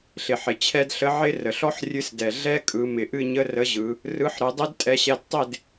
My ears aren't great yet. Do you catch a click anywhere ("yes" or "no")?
no